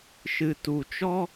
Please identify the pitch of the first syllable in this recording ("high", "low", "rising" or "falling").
low